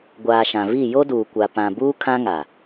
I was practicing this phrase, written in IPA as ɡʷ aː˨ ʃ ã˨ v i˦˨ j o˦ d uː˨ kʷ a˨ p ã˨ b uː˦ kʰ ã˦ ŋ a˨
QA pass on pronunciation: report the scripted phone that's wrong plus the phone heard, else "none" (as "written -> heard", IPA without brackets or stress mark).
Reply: none